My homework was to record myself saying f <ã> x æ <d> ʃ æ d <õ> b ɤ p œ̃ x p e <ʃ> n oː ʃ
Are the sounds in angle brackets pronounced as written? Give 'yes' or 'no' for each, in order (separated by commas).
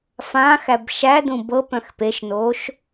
yes, no, no, yes